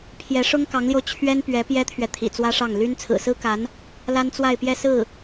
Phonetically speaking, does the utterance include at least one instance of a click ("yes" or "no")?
no